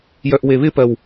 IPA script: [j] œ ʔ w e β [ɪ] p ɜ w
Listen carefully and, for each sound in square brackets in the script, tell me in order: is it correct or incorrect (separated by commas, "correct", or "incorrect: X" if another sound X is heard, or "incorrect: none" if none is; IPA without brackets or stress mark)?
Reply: correct, correct